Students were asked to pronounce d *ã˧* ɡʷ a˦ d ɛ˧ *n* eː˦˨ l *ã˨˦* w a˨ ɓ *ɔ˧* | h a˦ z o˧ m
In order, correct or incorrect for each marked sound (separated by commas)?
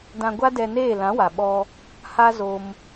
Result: correct, correct, correct, correct